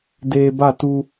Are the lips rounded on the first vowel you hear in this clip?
no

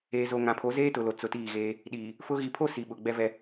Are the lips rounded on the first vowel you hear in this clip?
no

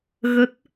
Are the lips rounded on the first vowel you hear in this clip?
no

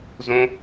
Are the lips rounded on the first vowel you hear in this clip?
yes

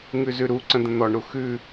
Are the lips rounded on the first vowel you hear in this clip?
yes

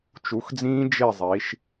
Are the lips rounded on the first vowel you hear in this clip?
yes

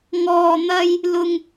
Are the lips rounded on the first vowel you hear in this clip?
yes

